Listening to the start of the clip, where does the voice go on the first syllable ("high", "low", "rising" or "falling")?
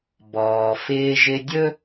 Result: low